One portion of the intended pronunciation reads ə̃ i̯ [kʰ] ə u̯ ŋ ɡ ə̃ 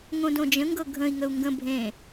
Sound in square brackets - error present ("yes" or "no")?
yes